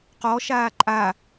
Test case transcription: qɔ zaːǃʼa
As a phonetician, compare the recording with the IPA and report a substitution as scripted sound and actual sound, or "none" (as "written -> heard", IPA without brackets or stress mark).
z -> ʃ